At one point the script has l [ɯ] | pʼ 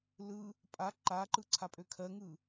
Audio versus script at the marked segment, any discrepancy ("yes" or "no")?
no